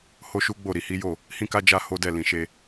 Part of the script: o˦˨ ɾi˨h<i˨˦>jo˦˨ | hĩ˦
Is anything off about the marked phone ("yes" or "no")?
no